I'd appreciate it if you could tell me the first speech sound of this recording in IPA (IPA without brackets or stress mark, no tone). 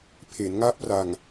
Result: pʰ